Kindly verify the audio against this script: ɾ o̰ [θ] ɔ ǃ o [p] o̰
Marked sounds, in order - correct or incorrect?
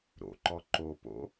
incorrect, correct

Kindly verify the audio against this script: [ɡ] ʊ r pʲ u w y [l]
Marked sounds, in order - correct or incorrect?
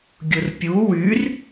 incorrect, incorrect

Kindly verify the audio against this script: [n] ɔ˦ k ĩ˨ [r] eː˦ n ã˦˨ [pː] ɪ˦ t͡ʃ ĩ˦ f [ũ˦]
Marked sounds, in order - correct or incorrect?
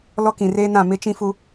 incorrect, correct, incorrect, incorrect

